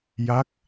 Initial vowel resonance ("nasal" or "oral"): oral